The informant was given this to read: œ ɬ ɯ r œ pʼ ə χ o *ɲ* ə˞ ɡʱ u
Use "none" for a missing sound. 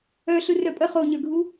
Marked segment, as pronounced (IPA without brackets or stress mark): ɲ